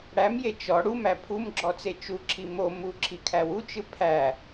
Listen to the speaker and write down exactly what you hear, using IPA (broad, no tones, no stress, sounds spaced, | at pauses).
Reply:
ɽ æ m j e t͡ʃ ɔ ɽ u m æ pʰ u m ɡ͡ǁ ɔ t͡s e t͡ʃ u ǁʰ i m o m u ǁʰ i kʰ æ w u t͡ʃ ɯ pʰ æ